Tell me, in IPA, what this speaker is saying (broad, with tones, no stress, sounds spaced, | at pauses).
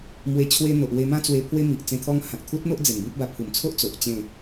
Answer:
m w e˧ t͡ɕʰ w e˦ n̪ o˨ ʔ w e˧ m ã˥˧ t͡s w e˧ pʰ w e˦ m i˨ ʔ t͡s ẽ˧ t̪ʰ ɔ˦ ŋ h ã˨ k̚ t̪ʰ u˦ t̚ n̪ o˦ ʔ d͡z e˨˩ n b ĩ˦ p̚ b a˧ pʰ u˨˩ m t͡sʰ o˦ ʔ t͡s o˨ ʔ t͡ɕ ẽ˥˧